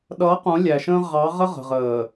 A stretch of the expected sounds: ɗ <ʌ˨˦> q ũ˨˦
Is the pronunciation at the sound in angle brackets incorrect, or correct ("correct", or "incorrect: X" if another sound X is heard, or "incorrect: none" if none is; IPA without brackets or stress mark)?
correct